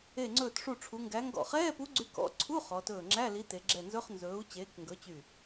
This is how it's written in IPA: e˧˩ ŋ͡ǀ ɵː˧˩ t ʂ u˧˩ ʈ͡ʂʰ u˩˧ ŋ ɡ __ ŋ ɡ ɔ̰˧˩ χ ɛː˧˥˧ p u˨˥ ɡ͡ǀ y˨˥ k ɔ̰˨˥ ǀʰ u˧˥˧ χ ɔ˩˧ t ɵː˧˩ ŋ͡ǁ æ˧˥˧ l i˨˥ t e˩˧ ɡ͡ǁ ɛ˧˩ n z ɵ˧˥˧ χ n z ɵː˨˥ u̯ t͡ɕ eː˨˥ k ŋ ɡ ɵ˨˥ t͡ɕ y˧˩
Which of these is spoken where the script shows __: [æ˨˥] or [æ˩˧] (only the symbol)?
æ˨˥